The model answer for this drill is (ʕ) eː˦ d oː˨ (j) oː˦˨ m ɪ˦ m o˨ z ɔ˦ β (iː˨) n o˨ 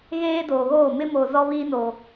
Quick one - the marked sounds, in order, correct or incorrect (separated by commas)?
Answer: incorrect, incorrect, incorrect